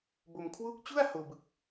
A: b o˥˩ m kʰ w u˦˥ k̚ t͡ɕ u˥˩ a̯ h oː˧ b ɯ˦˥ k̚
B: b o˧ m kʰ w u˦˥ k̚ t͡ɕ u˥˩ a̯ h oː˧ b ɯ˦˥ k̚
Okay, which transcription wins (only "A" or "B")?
B